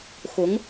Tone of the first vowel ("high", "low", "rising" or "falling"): rising